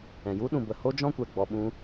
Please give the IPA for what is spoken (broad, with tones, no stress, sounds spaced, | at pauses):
ɛ̃˨ j u˦ ɗ ũ˨ b ə˨ h o˦ d͡ʒ ɔ̃˦ kʷ ɛ˨ ɡ͡b ɔ˧ ɓ ũ˦